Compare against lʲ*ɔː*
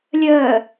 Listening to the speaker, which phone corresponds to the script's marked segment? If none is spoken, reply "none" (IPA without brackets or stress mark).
əː